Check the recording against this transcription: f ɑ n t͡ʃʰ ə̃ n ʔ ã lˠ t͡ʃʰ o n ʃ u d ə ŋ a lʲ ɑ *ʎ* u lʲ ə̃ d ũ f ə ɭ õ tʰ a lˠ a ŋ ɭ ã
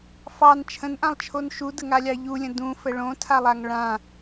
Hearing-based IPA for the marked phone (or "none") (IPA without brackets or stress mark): ʎ